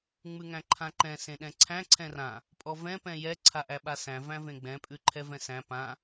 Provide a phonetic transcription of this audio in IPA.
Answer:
ŋ͡m ʉ ŋ æ̃ ǃʰ ã ǃ ɛ̃ s ẽ ɗ ɛ̃ ǀʰ æ̃ ǀʰ ɛ̃ r ã | pʼ ɔ v ɛ̃ p ɛ̃ j ɛ ǀʰ a ʔ æ ɓ a s æ̃ v æ̃ v ẽ ɡ͡b ɛ̃ pʼ ʉ ǃʰ ɛ v ɛ̃ s æ̃ p ã

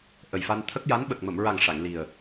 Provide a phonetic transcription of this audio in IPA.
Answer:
ʔ ə˨˩ j f a˧ n t̪ʰ ə˦˥ k̚ j a˧˥ n ɓ ə˨˩ k̚ m ə˨˩˨ m ɹ a˨˩ ŋ ʂ a˨˩˨ ŋ l i˨˩ ə̯

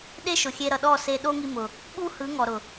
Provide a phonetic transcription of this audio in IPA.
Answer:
ɗ e˦ ʃ ʊ˨ xʲ e˧ ɾ ʌ˨ ɗ ɔ˦˨ s e˧ ɗ o˦ ŋ i˧ m ʊ˨ | ɓ u˦ h ɯ˨˦ ŋ ɔ˨ ɾ ʊ˨

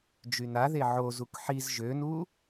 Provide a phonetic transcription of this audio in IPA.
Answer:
d͡ʒ y n a ð e ʕ o z u k ħ i z ʒ ø n u

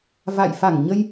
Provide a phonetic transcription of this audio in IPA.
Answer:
v a̰˧˨ j f a˧˩ ŋ ɲ ə˧ j

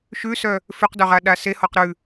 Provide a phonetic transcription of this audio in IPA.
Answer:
ʃ ʉ s œ | f ʉ q d œ ʁ a ɗ a s e h ɔ q ɾ ʉ

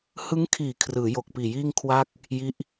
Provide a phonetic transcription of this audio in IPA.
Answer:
h ɯ˦˥ ŋ kʰ iː˨˩ kʰ r ɯː˩˦ j o˨˩ k̚ p iː˨˩ j iː˥˩ ŋ kʰ w a˥˩ k̚ | j i˦˥ ʔ

